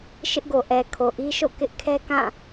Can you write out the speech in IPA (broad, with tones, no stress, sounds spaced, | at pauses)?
ʃ ɪ˦ ʔ ɡ o˨ ʔ ɛ˨ kʰ o˨ ʔ i˦ ʃ o̰˦˨ k ɪ˦ ʔ kʰ ɛ˦ k ã˦˨